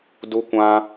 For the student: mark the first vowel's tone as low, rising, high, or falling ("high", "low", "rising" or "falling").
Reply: high